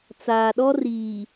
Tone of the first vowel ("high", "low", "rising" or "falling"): low